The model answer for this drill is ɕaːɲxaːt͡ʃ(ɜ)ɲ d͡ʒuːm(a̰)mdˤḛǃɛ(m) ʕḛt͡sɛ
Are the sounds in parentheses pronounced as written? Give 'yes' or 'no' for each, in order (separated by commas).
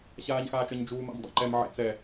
yes, yes, yes